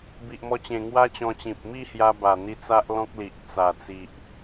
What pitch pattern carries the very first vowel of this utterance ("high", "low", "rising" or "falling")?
low